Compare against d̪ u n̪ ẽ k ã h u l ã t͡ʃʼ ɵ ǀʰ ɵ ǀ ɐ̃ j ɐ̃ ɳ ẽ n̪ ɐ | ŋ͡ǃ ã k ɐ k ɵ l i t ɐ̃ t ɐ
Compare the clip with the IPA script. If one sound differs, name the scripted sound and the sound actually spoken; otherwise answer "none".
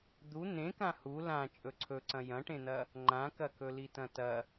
ɳ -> ʈ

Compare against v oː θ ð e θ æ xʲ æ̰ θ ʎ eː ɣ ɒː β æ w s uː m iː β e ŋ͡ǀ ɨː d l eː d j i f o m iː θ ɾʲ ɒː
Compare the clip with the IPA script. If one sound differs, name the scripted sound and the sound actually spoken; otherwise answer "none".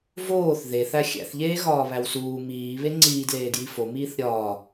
ɨː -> iː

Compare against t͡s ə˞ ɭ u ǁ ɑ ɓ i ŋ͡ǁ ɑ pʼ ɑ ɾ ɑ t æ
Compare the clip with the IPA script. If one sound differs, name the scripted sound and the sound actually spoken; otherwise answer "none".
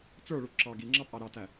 ɓ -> ɡ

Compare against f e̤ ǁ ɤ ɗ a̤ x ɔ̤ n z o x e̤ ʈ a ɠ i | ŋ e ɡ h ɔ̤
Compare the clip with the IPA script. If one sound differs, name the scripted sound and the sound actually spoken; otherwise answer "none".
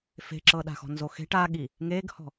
none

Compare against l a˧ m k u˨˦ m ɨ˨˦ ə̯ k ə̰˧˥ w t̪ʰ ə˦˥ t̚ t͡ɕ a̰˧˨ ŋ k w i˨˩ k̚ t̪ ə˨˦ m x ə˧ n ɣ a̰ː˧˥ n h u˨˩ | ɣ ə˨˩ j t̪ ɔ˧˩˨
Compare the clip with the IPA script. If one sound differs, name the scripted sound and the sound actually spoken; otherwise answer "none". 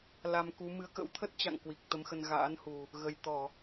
none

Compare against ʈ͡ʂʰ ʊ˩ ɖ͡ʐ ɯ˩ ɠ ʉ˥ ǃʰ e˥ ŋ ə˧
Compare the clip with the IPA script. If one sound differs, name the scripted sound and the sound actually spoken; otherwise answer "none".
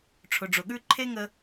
ɯ˩ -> ʊ˩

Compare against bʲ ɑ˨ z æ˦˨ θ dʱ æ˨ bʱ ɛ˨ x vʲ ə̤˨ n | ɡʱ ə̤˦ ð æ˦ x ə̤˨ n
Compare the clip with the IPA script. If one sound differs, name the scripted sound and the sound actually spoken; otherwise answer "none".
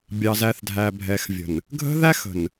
none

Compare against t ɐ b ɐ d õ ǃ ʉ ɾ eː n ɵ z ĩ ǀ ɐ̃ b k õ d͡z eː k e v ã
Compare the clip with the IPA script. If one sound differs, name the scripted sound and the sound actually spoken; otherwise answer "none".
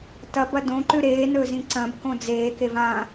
none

